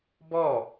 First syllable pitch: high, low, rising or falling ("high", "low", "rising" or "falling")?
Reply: falling